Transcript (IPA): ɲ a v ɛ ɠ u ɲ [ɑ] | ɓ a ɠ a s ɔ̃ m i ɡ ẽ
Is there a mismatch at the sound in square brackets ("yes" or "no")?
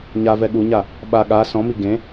yes